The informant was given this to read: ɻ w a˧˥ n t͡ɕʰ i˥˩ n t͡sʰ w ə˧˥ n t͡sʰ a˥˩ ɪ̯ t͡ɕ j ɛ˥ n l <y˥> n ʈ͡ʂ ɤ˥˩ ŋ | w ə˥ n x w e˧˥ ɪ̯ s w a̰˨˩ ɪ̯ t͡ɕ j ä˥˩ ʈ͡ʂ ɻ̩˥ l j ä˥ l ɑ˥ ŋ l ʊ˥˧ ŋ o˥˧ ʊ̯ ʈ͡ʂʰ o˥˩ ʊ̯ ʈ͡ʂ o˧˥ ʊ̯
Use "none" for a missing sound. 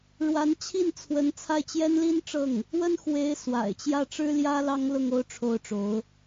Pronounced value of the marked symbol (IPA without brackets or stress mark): i˥